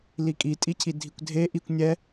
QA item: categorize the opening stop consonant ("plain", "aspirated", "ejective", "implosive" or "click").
ejective